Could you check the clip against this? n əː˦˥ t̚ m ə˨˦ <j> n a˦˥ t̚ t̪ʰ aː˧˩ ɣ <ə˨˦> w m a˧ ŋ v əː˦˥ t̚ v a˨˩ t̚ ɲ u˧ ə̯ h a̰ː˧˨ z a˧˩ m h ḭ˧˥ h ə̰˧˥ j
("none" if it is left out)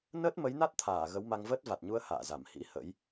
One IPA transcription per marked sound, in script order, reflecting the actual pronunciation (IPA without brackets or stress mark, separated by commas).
j, ə˨˦